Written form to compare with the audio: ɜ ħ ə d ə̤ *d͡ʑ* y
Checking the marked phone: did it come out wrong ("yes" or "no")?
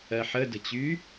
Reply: yes